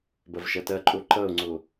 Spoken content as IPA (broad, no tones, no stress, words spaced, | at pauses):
bɐvʃʌtɐǃʼo ǃʌo̯ŋ͡ǀo